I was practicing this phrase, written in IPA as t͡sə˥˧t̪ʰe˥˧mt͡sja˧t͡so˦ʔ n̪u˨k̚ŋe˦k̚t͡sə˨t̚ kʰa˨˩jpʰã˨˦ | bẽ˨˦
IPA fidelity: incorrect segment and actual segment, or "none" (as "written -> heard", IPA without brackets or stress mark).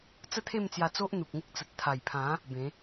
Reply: kʰ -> t̪ʰ